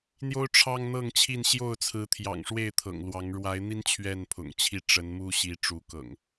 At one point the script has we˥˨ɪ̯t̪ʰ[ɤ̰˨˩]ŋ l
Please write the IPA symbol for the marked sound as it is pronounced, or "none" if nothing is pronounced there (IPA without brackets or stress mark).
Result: ɤ̰˨˩